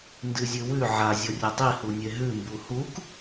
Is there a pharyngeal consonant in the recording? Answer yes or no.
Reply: yes